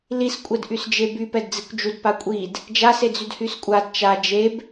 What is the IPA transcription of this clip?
l i s kʷʼ ɛ d ʔ y s d͡ʒ e b y p ɛ d d͡z i kʷ d͡ʒ u d p a kʷʼ i d | d͡ʒ a s e d͡z y d h y s kʷʼ a d t͡ʃ a d͡ʒ e b

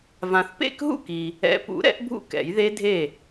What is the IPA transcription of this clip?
v ã˨ θ p ḛ˥˩ k ɦ ṵ˥˩ k i˨ | ɛ̰˨˩˦ p ṵ˨˩˦ ɾ ɛ̰˨˩˦ ʔ bʱ ṵ˥˩ k ɛ̰˨˩˦ j ð e˦˥ dʱ e˥˩

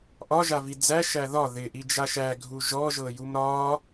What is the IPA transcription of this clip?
ʔ ɒ ʒ a v i d͡z æ ʃ æ ð ɒ ð ɪ ʔ i d͡ʒ a ʃ æ ɡʱ u ʒ ɔ ʒ ɤ j u m ɾ ɒ

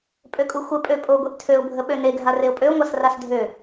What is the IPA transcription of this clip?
pʼ ø kʼ u xʷ ə pʼ ø pʼ o ɡʷ e ʔ tʰ ø ʊ̯ bʱ ə ɓ ø n e ɡʱ a r e ʊ̯ pʼ ø ʊ̯ ŋʷ a s r a s dʱ ø

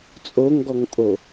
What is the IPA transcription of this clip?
t͡sʼ o ŋ ɡ ɔ ŋ pʼ o

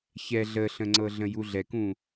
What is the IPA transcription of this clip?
ç ɛ ɮ ə ɬ ə̃ ŋ͡ǀ ɤ ɮ ə̃ j u ɮ ɛ k ũ

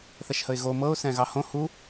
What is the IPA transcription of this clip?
θ ɛ ʃ h ə ɪ̯ ɣ o m ɤ ʊ̯ s ɛ̃ ɣ ɑ h õ h u

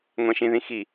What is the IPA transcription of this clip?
ŋʷ ɛ̃ ʃ ĩ ð ĩ x i

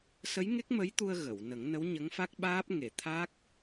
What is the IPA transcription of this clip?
s ə˧˥ j ŋ e˦˥ k̚ m ə˧˥ j t̪ u˧ ə̯ ɣ ə˨˩˨ w n ə˨˩˦ ŋ n ə˧˥ w ɲ ə˧˥ ŋ f a˦˥ k̚ ɓ aː˦˥ p̚ ŋ e˨˩˨ t̪ʰ a˦˥ k̚

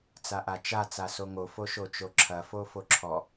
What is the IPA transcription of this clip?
t͡s a ʔ a t͡ʃ a t͡s a s o ŋ o f o ʃ o t͡ʃ o ǁʰ ɐ f o f o ǁʰ ɔ

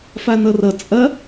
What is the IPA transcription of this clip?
f a n ʌ r ʌ t͡sʼ ɐ

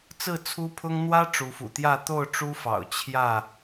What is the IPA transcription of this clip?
t͡s ɹ̩˥˨ t͡sʰ u˦ pʰ ʊ˦ ŋ n̪ w ä˦ ʈ͡ʂ u˨˦ f ṵ˨˩ t̪ j ä˥˨ t̪ o˥˨ ʊ̯ ʈ͡ʂ u˦ f ɑ̰˨˩ ʊ̯ t͡ɕʰ j ä˥˨

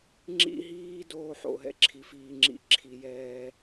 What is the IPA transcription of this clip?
ŋ͡ǁ ḭ˦ ɦ iː˦ d oː˦ ħ o̰˨ ɦ ɛ̰˦ ǁʰ i˨ f iː˨ ŋ͡ǁ ḭ˦ ǁʰ i˨ j ɛː˦

